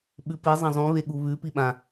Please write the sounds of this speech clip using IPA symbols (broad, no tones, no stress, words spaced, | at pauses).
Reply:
ɓʉpi zˤɐ̃zˤũβeɠu βʉ piɓã